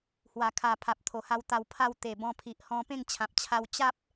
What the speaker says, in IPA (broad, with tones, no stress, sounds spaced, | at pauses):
h w a˨˩ kʰ a˨˩ pʰ a˨ p̚ t̪ʰ o˨˩ h a˧ w t̪ a˧ w pʰ a˥˧ w t̪ e˨˩ b ɔ̃˧ pʰ i˨ ʔ h ɔ̃˧ p ẽ˥˧ ŋ t͡ɕʰ ã˨ p̚ t͡ɕʰ a˧ w t͡ɕ a˦ p̚